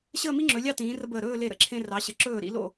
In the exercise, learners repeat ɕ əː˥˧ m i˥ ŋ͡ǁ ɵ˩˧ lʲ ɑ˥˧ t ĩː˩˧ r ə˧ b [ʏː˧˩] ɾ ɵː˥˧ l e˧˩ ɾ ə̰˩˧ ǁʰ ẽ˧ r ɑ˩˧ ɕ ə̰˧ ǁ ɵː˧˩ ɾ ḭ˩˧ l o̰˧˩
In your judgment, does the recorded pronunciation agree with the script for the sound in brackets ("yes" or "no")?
no